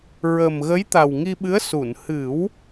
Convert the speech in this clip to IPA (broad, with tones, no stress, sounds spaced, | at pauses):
ɹ ə˨˩ m ɣ ə˧˥ j t̪ a˨˩ w ŋ i˧ ɓ ɨ˧˥ ə̯ s u˨˩˨ n h ɨ˨˩˦ w